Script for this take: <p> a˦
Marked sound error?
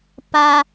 no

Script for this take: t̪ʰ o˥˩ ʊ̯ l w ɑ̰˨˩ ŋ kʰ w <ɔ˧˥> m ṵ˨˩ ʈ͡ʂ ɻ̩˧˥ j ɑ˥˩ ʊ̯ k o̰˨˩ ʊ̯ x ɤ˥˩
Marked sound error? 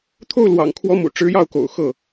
no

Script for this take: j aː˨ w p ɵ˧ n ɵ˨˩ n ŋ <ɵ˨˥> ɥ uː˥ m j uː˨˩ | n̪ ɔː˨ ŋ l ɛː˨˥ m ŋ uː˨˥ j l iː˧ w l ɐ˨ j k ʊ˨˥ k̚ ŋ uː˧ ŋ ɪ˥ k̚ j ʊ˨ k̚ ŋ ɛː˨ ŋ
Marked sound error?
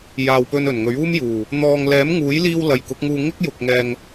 no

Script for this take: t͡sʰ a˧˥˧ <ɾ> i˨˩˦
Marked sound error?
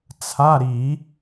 no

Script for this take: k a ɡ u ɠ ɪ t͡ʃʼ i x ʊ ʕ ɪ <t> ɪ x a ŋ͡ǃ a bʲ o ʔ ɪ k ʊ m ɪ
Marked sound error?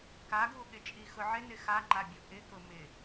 yes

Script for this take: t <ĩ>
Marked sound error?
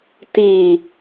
yes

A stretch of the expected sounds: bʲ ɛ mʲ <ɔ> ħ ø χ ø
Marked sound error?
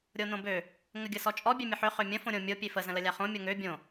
yes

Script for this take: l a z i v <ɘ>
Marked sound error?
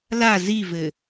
no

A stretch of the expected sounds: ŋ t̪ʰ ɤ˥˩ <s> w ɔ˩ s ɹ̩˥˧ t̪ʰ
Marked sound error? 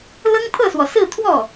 no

